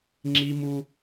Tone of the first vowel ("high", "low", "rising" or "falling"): high